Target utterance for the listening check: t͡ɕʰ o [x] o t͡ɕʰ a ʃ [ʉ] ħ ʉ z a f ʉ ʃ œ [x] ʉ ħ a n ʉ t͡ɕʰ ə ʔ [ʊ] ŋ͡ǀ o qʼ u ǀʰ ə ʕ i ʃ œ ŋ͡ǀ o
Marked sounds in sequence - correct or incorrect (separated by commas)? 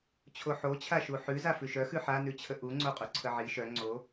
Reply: incorrect, incorrect, correct, incorrect